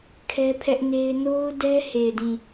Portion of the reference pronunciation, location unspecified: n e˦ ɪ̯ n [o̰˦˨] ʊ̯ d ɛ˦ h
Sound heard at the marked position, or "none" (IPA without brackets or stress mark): o˦